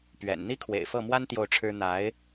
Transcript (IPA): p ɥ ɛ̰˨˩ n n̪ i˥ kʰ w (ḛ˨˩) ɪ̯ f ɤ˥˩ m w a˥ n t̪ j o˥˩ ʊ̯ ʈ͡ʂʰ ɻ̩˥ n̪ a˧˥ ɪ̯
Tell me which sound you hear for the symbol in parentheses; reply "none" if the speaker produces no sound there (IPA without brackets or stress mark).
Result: ḛ˨˩